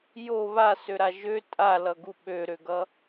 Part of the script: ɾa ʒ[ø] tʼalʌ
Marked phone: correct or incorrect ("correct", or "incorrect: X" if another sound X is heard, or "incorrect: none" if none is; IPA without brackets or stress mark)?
correct